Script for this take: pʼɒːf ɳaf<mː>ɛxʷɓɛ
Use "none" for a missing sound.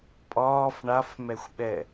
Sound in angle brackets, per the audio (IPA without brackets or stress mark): m